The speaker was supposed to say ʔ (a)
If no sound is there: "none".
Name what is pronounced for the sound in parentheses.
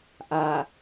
a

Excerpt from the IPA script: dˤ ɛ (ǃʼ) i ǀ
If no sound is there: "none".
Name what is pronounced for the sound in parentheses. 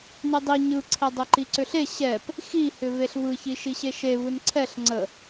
ǃ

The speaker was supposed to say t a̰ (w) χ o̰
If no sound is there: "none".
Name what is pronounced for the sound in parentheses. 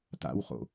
w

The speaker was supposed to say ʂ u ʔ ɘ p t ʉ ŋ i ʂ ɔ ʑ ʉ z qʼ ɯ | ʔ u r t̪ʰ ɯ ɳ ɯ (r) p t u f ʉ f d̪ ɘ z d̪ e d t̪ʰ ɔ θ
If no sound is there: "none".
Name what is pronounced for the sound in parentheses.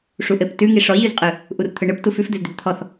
none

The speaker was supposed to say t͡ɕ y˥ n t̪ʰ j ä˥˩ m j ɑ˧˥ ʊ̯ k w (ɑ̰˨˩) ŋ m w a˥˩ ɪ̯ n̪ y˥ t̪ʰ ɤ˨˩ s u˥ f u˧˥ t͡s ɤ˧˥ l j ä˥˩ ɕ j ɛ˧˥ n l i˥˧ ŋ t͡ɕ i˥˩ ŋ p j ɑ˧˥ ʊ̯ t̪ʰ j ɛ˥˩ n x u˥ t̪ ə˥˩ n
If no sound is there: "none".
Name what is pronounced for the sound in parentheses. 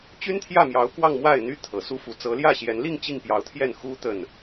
ɑ˥˧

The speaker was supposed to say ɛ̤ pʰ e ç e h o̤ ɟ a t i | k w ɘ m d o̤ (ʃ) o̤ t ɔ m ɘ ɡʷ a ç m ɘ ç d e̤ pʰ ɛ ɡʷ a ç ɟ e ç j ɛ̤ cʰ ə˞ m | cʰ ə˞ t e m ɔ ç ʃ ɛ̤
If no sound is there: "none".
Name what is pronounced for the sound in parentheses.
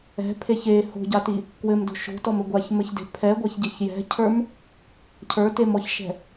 ʃ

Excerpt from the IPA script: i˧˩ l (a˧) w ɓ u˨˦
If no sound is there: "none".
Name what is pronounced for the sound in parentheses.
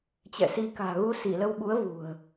ə˧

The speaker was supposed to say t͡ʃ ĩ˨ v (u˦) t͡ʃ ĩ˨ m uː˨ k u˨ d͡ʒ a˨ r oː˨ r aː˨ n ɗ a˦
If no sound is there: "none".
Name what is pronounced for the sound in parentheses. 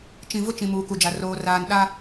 ʊ˦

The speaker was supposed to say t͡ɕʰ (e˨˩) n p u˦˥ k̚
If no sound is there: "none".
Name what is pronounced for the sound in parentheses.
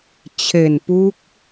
e˨˩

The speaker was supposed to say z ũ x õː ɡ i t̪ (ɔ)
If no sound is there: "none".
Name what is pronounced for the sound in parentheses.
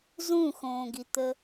ə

